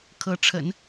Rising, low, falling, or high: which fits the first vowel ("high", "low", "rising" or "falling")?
rising